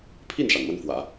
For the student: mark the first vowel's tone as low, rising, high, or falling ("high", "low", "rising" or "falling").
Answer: falling